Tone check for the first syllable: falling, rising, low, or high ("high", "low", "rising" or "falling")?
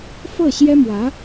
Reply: falling